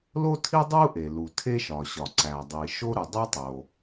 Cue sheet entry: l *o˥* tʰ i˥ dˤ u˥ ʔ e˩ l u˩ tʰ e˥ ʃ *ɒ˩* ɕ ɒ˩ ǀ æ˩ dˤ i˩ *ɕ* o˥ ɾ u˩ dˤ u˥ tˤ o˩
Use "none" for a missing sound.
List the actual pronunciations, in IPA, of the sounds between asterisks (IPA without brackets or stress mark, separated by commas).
o˥, ɒ˩, ʃ